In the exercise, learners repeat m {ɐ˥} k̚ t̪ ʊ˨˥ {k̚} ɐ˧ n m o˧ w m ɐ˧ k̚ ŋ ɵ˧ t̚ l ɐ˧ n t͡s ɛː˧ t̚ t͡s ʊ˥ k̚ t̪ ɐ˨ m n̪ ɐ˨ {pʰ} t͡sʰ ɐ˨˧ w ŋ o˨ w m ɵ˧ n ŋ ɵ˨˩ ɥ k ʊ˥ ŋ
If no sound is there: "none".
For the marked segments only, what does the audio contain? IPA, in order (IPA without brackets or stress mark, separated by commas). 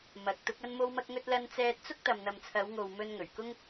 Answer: ɐ˨˥, k̚, m